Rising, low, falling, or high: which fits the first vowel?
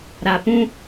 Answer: low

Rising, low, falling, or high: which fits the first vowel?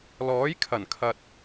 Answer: rising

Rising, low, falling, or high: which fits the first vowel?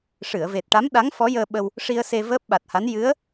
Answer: low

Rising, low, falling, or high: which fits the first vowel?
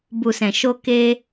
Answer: low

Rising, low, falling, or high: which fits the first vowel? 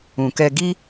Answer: low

